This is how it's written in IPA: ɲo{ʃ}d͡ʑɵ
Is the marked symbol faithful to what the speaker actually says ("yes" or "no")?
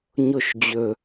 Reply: yes